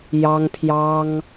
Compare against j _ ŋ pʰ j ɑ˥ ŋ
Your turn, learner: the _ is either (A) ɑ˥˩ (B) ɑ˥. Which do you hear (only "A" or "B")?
B